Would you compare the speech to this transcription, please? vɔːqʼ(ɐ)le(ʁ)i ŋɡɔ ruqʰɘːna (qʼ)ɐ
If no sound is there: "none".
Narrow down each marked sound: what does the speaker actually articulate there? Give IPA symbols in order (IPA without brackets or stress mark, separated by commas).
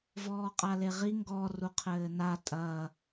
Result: a, ʁ, tʼ